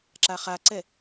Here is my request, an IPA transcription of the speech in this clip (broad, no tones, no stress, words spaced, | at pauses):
ǁaχaǀɛ